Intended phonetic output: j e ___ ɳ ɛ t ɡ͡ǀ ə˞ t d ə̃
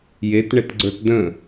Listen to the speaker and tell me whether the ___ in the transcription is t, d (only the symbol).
t